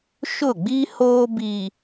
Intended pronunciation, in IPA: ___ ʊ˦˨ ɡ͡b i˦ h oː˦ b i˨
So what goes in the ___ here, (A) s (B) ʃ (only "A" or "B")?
B